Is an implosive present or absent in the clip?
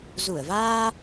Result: absent